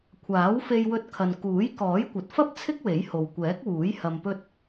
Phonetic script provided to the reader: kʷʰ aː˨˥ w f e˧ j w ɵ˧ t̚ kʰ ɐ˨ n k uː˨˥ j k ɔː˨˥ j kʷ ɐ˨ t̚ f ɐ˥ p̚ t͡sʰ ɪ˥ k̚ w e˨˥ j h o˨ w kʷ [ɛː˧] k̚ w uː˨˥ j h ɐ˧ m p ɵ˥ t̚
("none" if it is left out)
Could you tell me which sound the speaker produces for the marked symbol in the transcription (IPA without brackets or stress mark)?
ɛː˨˥